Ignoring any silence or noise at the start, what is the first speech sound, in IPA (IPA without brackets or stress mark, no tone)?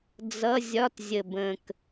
d͡z